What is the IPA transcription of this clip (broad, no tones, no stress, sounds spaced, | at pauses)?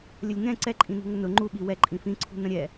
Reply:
lʲ ə lʲ ŋ ɛ̃ ǀ ɛ ǃʼ ĩ n ṳ ŋ ə n ʊ ŋ͡ǃ u ɓ i w ɛ ǃʼ ĩ f ĩ ǀʰ ṳ n ə̃ ɾʲ ɛ